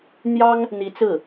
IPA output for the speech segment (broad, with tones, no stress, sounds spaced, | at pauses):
n̪ j ɑ˥ ŋ | n̪ i˧˥ t͡s ɹ̩˥˩